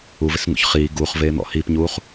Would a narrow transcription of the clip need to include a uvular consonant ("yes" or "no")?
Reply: yes